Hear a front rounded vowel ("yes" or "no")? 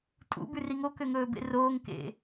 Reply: yes